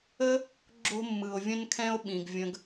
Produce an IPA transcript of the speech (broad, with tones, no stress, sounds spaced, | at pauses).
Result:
ə˦ | ɡ͡ǁ o̤˦ mː ɯ˨ o̯ vʲ ə̃˦ n kʰ ɛ̃˦ o̯ ɓ ĩ˨ ɡ vʲ ə̃˧ ɡ